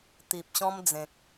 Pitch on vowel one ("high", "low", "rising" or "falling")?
low